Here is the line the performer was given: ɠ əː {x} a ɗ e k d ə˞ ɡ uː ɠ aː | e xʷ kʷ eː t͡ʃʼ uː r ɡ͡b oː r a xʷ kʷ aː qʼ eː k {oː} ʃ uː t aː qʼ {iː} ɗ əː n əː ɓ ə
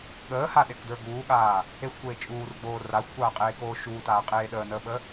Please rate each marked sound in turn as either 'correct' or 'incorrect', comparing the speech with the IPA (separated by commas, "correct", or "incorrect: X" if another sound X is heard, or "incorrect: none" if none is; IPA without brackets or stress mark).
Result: incorrect: h, correct, incorrect: eː